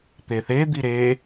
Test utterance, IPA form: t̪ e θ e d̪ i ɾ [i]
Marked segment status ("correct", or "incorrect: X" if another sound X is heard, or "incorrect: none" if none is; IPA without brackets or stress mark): incorrect: e